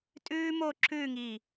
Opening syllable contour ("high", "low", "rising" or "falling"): high